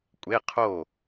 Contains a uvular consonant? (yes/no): yes